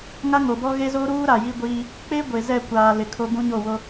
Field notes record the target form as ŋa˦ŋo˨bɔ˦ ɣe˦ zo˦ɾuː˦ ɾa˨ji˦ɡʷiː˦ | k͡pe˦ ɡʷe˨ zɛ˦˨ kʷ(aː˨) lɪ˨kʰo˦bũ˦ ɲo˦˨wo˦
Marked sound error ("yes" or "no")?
no